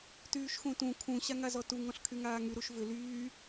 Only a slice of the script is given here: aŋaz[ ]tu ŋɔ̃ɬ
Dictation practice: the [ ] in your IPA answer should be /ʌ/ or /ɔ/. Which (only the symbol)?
ɔ